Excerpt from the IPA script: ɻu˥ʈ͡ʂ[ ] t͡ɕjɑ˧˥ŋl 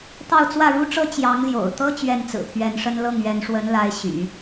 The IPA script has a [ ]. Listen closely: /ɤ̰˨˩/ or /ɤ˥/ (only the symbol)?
ɤ˥